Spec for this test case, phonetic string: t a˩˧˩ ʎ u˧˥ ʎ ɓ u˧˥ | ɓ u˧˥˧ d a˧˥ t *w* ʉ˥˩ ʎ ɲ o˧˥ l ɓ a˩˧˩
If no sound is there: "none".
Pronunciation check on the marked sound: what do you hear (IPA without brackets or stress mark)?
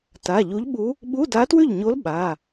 w